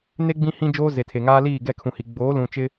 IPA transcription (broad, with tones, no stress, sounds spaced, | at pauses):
n e˦ ɡ͡b ĩ˦ h ĩ˦ d͡ʒ oː˦ z e˨ tʰ e˨ ŋ aː˦ l iː˦˨ ɡ ɛ˦˨ kʰ ũ˨ h i˨ ɡ͡b oː˨˦ l ũ˨ t͡ʃ ɪ˦